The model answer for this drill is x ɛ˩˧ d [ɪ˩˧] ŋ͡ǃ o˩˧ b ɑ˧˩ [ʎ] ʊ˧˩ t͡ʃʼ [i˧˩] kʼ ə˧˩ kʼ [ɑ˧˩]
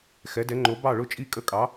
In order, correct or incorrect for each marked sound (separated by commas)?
incorrect, incorrect, correct, incorrect